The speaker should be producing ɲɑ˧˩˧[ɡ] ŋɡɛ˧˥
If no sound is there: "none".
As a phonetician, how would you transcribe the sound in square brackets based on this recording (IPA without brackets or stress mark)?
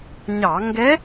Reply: none